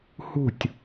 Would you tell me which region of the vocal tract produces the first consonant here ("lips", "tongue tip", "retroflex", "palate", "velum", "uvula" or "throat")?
throat